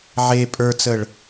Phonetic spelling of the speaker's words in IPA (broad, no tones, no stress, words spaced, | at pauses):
ʕe pʼə˞t͡səɭ